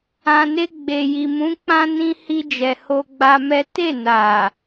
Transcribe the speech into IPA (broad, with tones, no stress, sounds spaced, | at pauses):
ã˨ n e˧ ɡ͡b e˨ j i˨ m ũ˨˦ k͡p ã˦ n ĩ˧ h i˧ d͡ʒ ɛ˨ h o˧ ɡ͡b a˧ m ɛ˦ t e˦˨ n a˨